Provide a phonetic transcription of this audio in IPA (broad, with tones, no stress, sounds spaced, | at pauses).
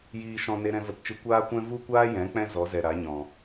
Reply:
j iː˦ ʃ ɔ̃˦ n e˧ ɾ ɛ̃˧ v ə˧ t t͡ʃ ɨ˧ kʷ aː˦ kʷ ɛ̃˦ v u˦ kʷ aː˦ j ɛ̃˨˦ k͡p ɛ̃˦ z ɔ˨˦ z ɛ˨ ɾ a˨˦ ɲ ɔ̃˨